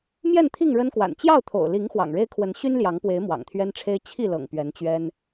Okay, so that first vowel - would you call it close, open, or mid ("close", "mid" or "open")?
mid